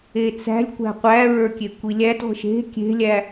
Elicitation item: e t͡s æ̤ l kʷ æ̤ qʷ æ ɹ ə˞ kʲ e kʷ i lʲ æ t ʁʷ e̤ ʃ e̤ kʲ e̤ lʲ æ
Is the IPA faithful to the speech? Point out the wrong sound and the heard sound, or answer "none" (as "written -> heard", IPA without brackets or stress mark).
l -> lʲ